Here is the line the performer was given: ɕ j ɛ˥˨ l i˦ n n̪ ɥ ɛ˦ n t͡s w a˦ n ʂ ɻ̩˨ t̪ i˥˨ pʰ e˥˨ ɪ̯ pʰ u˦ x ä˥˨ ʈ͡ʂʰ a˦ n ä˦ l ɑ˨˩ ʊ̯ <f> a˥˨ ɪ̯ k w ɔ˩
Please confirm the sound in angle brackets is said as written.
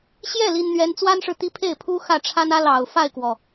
yes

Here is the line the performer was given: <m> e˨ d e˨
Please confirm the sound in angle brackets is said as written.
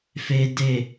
no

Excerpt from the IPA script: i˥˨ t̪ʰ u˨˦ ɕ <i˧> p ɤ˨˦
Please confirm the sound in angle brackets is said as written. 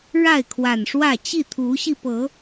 yes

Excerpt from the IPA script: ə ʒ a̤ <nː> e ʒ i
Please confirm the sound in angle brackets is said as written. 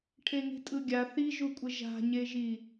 no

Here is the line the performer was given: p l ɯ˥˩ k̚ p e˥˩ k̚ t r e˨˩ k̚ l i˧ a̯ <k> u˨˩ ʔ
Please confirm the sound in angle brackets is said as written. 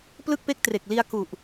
yes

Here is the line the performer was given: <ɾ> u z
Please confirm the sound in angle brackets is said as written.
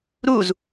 yes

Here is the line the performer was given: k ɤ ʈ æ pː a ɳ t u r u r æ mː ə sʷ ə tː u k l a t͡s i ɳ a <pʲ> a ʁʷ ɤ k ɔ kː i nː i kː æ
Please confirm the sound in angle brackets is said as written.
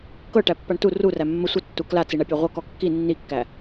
yes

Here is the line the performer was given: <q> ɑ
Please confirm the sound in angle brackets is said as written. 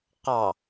yes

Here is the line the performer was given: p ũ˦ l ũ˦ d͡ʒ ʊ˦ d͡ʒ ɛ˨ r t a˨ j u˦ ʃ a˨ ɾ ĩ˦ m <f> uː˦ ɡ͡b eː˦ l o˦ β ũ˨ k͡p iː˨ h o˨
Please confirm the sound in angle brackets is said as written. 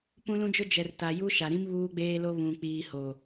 no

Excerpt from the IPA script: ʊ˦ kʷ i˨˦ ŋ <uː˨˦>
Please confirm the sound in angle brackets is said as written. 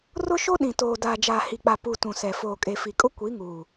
no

